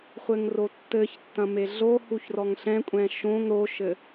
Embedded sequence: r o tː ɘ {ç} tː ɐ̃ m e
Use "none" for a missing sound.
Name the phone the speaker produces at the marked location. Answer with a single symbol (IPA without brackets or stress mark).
ç